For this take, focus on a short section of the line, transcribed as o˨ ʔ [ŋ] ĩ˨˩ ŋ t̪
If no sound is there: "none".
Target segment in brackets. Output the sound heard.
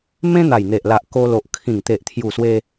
kʰ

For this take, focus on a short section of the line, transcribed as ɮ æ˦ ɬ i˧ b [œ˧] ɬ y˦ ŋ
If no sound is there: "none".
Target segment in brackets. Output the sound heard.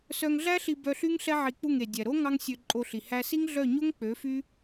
œ˧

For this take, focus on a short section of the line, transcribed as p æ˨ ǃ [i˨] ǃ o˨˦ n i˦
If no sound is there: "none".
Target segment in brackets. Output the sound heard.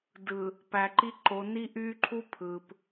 i˦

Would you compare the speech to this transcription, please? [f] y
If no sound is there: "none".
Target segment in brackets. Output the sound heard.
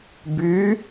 b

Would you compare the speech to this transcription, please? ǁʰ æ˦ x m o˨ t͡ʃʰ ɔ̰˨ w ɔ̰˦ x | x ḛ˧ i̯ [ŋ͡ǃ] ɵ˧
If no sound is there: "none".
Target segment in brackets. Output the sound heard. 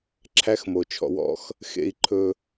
ǃʰ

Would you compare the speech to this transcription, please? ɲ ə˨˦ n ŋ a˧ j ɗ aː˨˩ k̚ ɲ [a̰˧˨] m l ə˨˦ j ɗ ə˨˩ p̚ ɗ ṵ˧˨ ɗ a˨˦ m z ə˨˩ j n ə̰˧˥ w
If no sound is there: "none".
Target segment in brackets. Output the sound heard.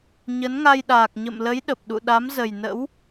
ə̰˧˨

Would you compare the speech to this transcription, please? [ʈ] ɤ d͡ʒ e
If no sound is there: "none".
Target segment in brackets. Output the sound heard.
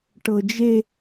ʈ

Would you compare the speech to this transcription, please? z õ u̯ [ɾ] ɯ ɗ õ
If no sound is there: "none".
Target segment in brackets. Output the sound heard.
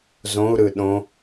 ɾ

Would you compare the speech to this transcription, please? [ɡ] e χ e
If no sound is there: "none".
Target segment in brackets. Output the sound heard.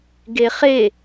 ɡ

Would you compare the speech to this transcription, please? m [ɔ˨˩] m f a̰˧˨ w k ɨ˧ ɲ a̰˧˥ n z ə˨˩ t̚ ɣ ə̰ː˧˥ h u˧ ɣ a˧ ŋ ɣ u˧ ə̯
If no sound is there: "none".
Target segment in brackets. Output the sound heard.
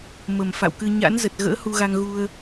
ə˨˩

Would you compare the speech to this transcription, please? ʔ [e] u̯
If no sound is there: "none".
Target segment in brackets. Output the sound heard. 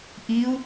i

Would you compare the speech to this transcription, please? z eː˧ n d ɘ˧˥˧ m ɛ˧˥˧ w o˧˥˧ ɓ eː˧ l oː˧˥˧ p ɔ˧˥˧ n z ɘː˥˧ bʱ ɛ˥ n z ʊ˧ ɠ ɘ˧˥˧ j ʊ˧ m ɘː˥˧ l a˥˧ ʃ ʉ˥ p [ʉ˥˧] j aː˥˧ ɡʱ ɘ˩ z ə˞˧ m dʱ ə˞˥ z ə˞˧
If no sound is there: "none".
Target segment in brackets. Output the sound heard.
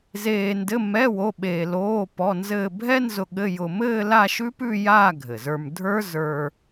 ʉ˥˧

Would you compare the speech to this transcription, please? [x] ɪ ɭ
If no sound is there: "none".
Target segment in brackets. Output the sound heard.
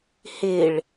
h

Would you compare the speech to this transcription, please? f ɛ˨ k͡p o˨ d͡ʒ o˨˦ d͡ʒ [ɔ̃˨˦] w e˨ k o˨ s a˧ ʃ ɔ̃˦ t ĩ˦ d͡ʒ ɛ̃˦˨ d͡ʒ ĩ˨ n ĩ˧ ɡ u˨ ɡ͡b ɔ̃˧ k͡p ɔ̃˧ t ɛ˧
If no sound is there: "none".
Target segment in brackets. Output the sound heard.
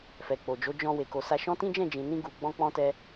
ɔ̃˧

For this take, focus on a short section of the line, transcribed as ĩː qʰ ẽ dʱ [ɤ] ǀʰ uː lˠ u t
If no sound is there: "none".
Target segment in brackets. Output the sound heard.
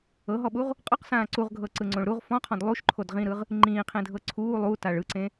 ɤ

